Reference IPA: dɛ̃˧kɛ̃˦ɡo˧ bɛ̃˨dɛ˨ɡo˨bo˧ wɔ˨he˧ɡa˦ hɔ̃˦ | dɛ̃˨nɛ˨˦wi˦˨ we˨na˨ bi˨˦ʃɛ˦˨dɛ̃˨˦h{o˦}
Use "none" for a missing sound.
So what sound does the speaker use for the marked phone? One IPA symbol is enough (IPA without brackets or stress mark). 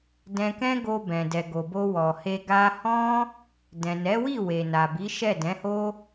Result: o˦